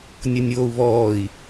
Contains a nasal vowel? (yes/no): no